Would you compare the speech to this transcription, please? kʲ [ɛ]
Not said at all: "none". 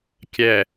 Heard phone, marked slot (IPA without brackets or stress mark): ɛ